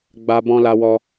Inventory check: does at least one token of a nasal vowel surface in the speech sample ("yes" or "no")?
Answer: yes